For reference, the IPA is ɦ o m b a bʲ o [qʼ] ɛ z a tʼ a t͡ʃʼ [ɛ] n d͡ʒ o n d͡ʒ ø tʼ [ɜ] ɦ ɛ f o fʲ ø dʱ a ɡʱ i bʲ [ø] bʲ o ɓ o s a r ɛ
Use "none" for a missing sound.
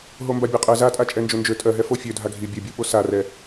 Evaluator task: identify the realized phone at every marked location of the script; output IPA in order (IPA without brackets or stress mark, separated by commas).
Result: qʼ, ɛ, ɜ, ø